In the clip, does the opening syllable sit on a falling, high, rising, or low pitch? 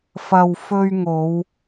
low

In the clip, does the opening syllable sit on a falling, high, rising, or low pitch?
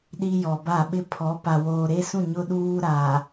high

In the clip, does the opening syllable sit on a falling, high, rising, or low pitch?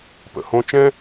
low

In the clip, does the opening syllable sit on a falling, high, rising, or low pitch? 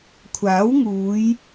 rising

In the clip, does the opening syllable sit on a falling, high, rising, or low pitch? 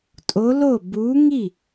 rising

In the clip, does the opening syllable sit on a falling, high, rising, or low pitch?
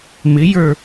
rising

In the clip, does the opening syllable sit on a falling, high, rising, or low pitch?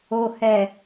low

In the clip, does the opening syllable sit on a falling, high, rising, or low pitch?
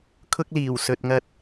high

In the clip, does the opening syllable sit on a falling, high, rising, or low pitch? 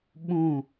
falling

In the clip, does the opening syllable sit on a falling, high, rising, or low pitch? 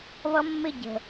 high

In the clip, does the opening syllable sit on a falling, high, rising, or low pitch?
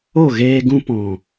falling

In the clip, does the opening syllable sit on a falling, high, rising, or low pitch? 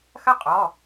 falling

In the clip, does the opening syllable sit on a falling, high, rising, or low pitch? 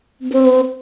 low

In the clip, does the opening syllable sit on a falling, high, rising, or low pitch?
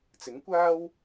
rising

